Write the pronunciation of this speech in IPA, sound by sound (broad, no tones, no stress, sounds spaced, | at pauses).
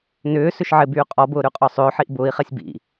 n ʏː s ʏ ʃ ʕ ɪ b yː qʼ ɔ b ʊː ɾ y qʼ ɔ sˤ ʏː ħ i ʔ b ʊː i̯ χ ɛ sʲ b ḭ